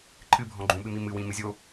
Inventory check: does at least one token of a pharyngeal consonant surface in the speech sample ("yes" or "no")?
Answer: no